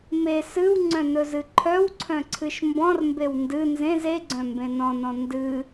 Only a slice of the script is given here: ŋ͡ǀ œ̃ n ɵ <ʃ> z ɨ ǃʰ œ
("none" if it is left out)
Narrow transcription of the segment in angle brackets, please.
none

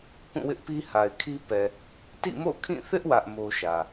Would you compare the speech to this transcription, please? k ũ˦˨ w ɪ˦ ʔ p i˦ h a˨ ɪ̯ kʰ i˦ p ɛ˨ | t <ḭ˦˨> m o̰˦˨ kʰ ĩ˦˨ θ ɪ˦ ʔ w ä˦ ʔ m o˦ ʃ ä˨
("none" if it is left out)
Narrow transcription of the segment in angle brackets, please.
ḭ˦˨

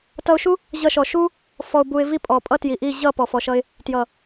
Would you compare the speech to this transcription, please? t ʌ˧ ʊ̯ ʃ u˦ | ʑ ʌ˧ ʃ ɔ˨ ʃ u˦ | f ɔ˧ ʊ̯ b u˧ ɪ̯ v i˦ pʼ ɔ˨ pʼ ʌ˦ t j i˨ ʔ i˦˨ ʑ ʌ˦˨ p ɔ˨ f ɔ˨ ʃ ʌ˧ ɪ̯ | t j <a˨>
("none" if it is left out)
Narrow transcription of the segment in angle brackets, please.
ʌ˨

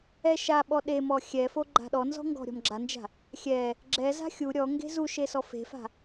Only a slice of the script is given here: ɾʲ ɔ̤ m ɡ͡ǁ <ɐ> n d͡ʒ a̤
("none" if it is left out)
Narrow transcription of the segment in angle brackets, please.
a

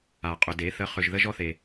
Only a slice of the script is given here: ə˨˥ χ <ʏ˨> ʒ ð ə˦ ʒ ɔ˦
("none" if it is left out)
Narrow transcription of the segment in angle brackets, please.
ʏ˨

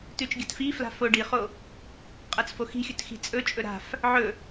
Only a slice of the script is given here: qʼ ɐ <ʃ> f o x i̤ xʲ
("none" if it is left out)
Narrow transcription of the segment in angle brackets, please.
t͡s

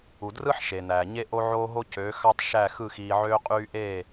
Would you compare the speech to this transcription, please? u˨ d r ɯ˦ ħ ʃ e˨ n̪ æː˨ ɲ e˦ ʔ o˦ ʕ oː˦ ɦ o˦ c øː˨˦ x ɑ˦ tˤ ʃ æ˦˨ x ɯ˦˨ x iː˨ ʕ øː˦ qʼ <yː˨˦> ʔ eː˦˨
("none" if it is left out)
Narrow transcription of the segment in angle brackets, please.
yː˦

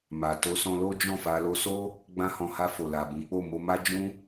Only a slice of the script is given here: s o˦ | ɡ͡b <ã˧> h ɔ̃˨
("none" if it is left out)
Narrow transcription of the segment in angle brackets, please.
ã˧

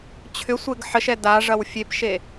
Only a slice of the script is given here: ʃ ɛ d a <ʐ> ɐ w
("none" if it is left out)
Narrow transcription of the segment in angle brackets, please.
ʐ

